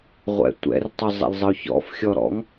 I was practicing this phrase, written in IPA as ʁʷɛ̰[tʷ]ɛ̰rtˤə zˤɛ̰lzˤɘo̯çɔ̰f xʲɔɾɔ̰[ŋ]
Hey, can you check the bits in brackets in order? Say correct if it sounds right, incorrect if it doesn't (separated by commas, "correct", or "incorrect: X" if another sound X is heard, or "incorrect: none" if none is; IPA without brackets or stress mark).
correct, correct